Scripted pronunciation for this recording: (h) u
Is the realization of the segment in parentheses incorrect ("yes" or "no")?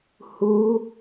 no